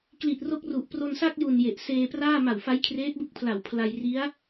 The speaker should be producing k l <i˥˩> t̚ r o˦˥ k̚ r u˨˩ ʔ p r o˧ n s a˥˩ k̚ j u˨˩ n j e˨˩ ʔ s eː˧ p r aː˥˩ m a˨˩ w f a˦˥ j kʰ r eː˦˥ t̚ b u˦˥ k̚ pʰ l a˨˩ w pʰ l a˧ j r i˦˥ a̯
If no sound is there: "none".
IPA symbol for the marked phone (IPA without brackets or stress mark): i˨˩